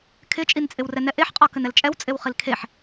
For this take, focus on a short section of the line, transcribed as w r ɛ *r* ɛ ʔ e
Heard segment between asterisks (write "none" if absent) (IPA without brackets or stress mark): n